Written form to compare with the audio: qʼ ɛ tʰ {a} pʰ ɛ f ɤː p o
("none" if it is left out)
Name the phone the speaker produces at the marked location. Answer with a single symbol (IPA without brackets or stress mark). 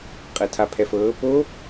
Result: a